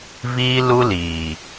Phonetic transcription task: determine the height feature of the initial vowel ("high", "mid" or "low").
high